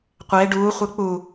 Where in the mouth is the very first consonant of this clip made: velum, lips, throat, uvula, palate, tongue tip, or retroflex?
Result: uvula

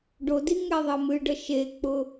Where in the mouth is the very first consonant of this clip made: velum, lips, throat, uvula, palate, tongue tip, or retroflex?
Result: retroflex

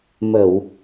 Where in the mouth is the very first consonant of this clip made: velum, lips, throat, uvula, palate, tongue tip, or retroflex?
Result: lips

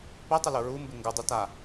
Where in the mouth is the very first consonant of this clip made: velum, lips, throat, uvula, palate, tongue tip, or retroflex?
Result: lips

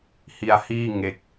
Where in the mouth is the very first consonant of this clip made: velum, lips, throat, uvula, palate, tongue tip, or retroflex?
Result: throat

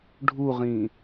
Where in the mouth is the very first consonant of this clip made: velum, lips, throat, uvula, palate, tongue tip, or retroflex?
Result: retroflex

